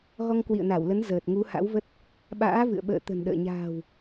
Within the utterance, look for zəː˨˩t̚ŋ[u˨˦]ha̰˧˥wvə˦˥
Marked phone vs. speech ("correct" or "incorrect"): correct